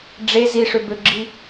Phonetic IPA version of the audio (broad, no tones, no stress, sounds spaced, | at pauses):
ɖ͡ʐ e z i ʂ ø b ø ɡ͡ǁ i